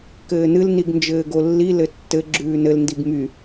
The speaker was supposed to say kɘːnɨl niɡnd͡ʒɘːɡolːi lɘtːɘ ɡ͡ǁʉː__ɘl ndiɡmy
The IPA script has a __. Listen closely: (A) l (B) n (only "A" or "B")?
B